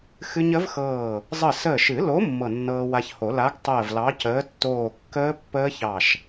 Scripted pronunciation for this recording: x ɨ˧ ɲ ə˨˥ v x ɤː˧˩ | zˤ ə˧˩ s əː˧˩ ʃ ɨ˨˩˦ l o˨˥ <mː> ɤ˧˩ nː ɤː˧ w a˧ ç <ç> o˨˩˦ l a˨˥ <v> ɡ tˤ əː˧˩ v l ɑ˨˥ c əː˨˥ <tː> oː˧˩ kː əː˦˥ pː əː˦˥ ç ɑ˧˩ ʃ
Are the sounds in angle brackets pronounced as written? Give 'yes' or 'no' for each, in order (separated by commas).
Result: yes, no, no, yes